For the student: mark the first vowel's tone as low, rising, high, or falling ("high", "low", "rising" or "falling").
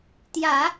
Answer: low